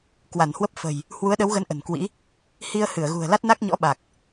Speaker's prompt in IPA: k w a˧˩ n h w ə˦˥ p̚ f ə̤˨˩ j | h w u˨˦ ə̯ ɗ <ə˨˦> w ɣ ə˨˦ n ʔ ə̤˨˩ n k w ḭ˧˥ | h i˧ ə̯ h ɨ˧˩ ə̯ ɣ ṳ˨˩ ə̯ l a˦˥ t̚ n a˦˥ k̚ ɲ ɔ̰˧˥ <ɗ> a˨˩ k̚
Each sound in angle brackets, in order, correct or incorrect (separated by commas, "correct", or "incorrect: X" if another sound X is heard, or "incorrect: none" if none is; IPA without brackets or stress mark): correct, incorrect: ɓ